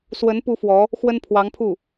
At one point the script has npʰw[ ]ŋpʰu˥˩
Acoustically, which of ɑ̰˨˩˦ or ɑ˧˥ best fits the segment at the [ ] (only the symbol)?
ɑ˧˥